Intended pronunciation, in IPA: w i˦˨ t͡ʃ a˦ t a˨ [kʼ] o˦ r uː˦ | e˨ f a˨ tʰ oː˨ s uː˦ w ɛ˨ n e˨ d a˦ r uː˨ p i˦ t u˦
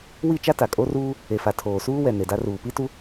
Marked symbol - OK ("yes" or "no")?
yes